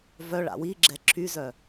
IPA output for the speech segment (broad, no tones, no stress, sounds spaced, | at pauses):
v œ ɭ a̰ w i ɡ͡ǁ ɛ ǁʰ y z œ